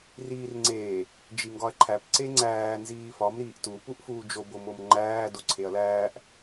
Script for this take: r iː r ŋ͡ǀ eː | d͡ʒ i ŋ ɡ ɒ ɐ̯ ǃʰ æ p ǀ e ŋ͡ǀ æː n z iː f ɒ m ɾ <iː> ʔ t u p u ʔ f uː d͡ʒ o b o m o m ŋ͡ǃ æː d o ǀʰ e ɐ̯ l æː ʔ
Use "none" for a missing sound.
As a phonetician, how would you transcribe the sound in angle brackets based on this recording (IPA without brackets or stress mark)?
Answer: iː